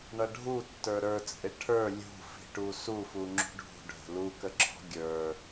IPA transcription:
ɳʌɖʱutːə˞ ɾə˞t͡sʼɪ ʈʰə˞ lʲṳfi̤ʈu sufu ŋ͡ǁṳɖʱṳɖʱə̤ lukəǁʰɔ̤ ɡʲə˞

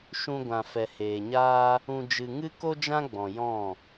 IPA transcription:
ʃũ˧ɡʷã˨ fɛ˨heː˨ɲaː˦ | ũ˧ d͡ʒɨ˧ ŋɨ˦ko˦d͡ʒã˦ɡ͡bɔ̃˨ jɔ̃˦˨

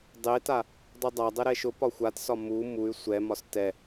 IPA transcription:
dˤeta | dˤudˤadˤɛ ɾɛʃʊpɒ xʷatsɒ mu muy̯ sʷɛmɒs tɛ

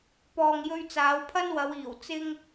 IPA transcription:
pɔː˨ŋjɵ˧ɥ t͡saː˨˧wpʰɐ˥nwɐ˨˧w iː˨˩w t͡sɪ˧ŋ

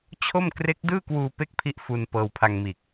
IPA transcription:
t͡ɕʰo˥˩m kre˦˥k̚dɯː˥˩kwuː˧ pe˥˩k̚pʰi˦˥ʔ fu˧n pɤː˧wpʰa˧ŋmiː˨˩k̚

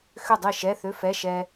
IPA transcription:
xʏ˥˩dˤi˥˩ʃɛ˧˥˧ θʏ˧˥˧fɛ˧˥˧ ʃɛ˥

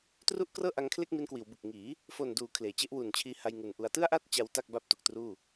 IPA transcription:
tru˥˩ʔkrɤː˥˩ʔa˧ŋkʰle˥˩k̚ mi˧nkwiː˩˦wbɯ˨˩k̚ŋiː˩˦ | fo˨˩nduː˩˦ kʰleː˨˩ t͡ɕe˦˥ʔwu˨˩nt͡ɕʰiː˧ha˧j ŋu˨˩nʔu˧a̯ tɯ˥˩a̯ʔa˥˩t̚ t͡ɕa˦˥wta˥˩k̚ ba˥˩p̚tu˨˩k̚truː˥˩

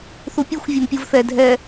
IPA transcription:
θupʲɯxʷ vʲɯmpʲuvθɛ dʱɛ

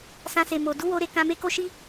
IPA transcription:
sã˧se˨mo˨ du˨˦wo˧ɾe˧ kã˧me˦ko˦ʃi˦

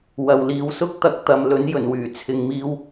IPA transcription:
wɐ˨wliː˨˧wsʊ˥k̚ t̪ɐ˥k̚t̪ɐ˨˧m lɵ˨˥njɵ˨˩nwyː˨˩ t͡sʰɪ˨ŋmiː˧w

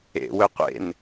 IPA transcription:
ḛ wɵqʷḛn

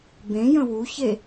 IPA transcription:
bẽjə̃ wuçe

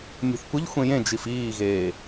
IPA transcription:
nʲṳθkʷəʎ xʷẽjẽ d͡ʒifiːɣeː

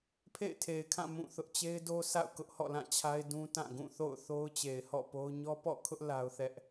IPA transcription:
pʰḛ˦˨ɪ̯tʰe˨ɪ̯kʰã˦˨ mũ˦˨θʊ˦ʔ t͡ɕe˦ɪ̯do˦ sa̰˦˨ʊ̯kʊ˦ʔhɔ̰˦˨ lã˦˨t͡ɕʰa˦ɪ̯ dũ˦tã˦˨ ɡũ˦˨θo̰˦˨ʊ̯ θo˦ʊ̯t͡ɕe˨ɪ̯hɔ̰˦˨po˦ʊ̯ ɲɔ˦pɔ̰˦˨kʰʊ˦ʔ la˦ʊ̯θɛ˦ʔ

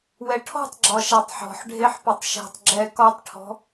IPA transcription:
wɛʈʰɔ̤tˤɡ͡ǁɒ ʃatˤħɔ̤ħɖʱeħ pɵtˤʃɛ̤tˤ ɡ͡ǁɛ kɒtˤʈʰɔ̤

